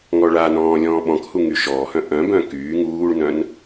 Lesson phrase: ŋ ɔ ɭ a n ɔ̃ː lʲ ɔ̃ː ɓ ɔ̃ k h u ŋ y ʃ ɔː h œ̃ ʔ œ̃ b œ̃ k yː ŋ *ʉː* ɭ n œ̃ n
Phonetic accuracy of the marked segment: incorrect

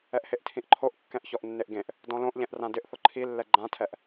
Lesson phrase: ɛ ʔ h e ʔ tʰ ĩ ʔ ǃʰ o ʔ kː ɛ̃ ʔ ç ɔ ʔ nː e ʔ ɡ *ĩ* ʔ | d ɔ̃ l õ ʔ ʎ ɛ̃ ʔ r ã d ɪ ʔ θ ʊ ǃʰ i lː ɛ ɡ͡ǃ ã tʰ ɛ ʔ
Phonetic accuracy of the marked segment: incorrect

